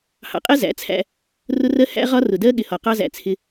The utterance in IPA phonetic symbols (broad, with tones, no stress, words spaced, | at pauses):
hɑ̰˨qʼɛ˦ zæ̰˨˦t͡sʰæ̰˦ | rʊ˦rɜ˦ hæ̰˦ʁɒ˦ rʊ˨dɜ˦ ɠɪ˨hɒ˨qɑ˦zæ̰˨ t͡sʰɪ˦